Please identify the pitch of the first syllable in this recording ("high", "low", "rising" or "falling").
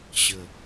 low